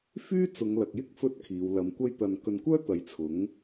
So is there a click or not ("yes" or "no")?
no